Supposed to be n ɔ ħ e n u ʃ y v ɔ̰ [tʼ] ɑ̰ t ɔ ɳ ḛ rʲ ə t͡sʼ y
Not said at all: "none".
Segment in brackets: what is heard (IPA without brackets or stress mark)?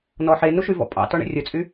pʼ